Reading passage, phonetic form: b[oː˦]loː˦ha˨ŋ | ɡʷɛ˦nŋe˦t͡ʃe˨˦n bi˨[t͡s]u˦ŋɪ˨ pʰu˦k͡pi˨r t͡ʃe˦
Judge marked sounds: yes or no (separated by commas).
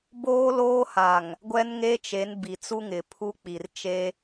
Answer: yes, yes